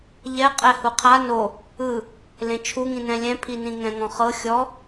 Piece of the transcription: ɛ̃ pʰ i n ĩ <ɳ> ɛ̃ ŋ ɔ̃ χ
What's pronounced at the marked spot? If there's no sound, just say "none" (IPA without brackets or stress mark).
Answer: ŋ